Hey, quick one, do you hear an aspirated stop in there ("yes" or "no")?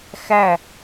no